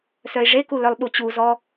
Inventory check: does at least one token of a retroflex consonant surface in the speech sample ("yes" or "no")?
yes